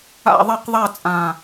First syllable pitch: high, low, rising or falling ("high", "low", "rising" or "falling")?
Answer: falling